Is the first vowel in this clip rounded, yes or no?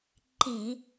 no